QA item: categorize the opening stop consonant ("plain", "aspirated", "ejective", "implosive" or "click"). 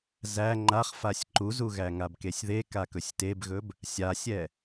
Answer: click